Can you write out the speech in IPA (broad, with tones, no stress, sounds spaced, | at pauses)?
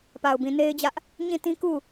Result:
p a˨ ʊ̯ b ĩ˨ n e˦ ɪ̯ d͡ʑ ä˦ ʔ | ɲ ĩ˦˨ t ĩ˦ k u˦˨